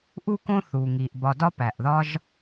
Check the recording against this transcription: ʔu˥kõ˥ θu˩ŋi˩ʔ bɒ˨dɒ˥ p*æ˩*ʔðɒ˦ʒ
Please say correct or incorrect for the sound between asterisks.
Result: correct